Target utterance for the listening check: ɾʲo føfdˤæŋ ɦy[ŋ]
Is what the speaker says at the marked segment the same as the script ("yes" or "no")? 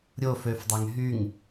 yes